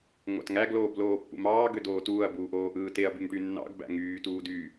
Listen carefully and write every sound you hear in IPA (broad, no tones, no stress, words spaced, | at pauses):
ŋʷɑ̰tŋæ ɡloːbloːpːṵmɑː ɡødoːtuːɐ̯ buːʔoːʔɯːteɐ̯ byŋʈynːɑ̰ɡ bæ̰ŋyː tuːdy